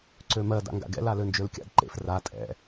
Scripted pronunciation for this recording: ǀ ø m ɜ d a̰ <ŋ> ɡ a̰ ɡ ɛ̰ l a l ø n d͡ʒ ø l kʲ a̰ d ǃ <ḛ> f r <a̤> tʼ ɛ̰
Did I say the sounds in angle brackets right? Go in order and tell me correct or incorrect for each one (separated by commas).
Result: correct, correct, incorrect